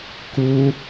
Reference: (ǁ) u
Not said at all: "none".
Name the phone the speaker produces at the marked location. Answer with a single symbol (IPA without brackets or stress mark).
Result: k